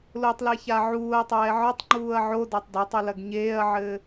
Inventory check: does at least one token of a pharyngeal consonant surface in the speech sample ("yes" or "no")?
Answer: yes